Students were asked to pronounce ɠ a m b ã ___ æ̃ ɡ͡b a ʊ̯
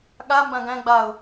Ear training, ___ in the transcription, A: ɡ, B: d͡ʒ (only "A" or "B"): A